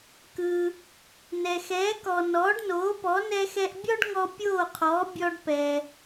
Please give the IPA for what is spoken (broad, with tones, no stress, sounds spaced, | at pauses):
k ɯ˩ | n ɛ˩ x ɛː˩˥ k ɔ˩ n ɔː˩˥ ɖ n oː˩˥ p ɔ˩˥ n ɛ˧ x ɛ˧ ʔ bʲ ɔ˥ ɖ ŋ ɔ˧ pʲ oː˥˩ qʰ ɔː˩˥ bʲ ɔ˧ ɖ p ɛ˩